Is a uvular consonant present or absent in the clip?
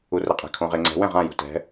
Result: present